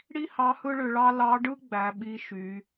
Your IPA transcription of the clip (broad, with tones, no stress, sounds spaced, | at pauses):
ɽ i˥ h ɑ˧˥ h ɯ˥ ɭ ø˧ ɭ ɑ˥ l ɑ˧˥ ɖ ɯ˥ ɡ͡b æ˩˧ ɓ i˧˥ ʃ y˩˧